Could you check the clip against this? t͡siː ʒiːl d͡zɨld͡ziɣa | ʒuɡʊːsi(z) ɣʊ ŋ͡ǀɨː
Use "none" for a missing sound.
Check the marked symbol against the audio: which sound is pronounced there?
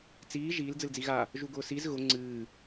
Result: z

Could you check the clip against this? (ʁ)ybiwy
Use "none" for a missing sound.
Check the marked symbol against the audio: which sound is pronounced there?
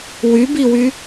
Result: w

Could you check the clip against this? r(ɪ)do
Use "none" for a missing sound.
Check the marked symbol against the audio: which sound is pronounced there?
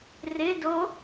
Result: ɪ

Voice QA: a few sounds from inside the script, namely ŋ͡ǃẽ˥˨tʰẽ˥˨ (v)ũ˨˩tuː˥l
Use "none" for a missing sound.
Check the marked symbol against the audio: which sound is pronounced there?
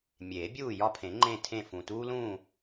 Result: f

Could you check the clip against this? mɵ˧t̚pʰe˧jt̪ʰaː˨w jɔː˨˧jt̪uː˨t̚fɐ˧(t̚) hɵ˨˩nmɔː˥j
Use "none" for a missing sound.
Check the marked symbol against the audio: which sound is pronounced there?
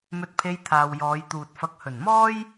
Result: k̚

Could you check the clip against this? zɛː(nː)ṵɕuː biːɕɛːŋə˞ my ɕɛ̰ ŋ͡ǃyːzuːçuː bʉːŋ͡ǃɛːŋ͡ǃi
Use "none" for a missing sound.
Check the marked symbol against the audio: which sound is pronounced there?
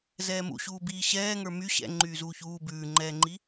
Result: m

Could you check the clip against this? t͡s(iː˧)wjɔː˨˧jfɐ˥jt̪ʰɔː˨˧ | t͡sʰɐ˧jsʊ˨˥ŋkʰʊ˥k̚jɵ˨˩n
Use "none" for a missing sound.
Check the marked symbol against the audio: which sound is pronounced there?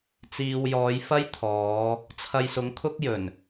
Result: iː˨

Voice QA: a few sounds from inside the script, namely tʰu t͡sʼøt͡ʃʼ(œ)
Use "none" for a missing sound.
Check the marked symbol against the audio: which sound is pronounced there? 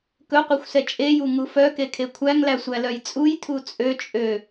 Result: ø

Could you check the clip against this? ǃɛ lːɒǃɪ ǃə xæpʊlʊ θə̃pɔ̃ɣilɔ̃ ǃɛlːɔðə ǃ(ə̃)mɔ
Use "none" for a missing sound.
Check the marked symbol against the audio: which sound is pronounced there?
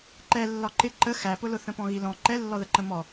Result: ə̃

